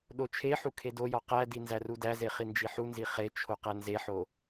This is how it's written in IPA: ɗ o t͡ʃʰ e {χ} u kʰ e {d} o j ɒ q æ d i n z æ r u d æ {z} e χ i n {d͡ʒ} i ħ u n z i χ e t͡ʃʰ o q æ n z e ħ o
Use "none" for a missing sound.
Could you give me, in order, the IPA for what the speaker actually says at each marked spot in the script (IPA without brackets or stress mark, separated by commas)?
ħ, d, z, d͡ʒ